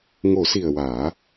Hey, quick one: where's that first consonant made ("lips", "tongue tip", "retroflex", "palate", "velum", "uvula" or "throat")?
velum